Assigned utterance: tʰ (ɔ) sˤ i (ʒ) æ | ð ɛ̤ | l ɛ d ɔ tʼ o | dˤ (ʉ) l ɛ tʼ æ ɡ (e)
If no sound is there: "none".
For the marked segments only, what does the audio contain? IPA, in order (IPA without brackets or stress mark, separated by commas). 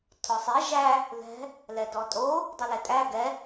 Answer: ɔ, ʒ, ʉ, ɛ